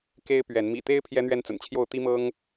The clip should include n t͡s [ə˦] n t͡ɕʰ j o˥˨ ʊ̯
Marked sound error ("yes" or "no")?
yes